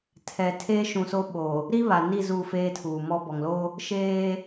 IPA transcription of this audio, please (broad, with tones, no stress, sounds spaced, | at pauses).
tʰ ɛ˨ tʰ eː˦ ʃ ũ˨ s o˦ ɓ o˨ | ɾ i˦ β a˨ n i˦˨ z u˦˨ f eː˦ tʰ uː˨ m ɔ˦ b ɔ˨ ŋ l o˦ | ʃ eː˦